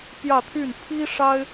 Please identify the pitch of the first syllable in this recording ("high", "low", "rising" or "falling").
falling